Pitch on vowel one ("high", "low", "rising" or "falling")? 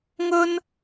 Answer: high